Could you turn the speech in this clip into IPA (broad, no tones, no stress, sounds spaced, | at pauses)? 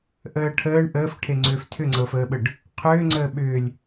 ʔ əː ʈʰ əː ɳ ʔ əː f ʈʰ e ŋ͡ǀ ʏː f tʰ ʏ ŋ͡ǀ ɤː f əː ɓ ə ɖ | qʰ ʏː ŋ͡ǀ əː ɓ ʏː lʲ